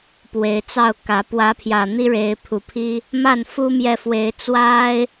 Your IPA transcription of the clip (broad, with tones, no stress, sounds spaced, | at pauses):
p w e˨˦ ɪ̯ t͡s ɑ˥˨ ʊ̯ k ä˨˦ p w ä˨˦ pʰ j ä˨˩ n̪ i˦ ɻ e˨˦ ɪ̯ pʰ u˨˩ pʰ i˦ | m a˥˨ n f u˦ m j ɛ˨ f w e˨˦ ɪ̯ t͡s w a˦ ɪ̯